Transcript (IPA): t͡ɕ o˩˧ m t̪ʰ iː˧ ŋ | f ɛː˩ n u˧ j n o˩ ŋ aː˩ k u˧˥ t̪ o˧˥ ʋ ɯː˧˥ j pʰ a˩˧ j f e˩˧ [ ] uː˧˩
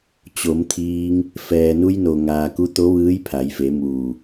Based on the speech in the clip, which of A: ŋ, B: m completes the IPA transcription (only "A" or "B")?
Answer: B